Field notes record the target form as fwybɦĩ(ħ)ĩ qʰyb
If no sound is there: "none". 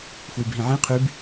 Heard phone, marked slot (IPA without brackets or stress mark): ʕ